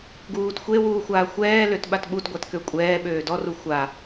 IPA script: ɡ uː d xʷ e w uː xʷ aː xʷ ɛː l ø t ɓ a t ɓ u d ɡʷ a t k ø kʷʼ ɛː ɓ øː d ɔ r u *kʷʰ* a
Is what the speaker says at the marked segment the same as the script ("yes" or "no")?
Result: no